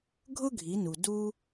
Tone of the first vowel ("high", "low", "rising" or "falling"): high